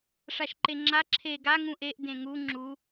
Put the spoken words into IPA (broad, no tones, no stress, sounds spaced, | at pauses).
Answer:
ʂ a ʃ ǃ e ŋ͡ǁ a ǁʰ e ɡ a ŋ ũ ʔ e ʔ d ẽ ŋ u ŋ͡ǁ u